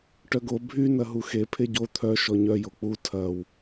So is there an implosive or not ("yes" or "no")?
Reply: no